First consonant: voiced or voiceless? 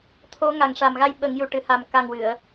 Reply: voiceless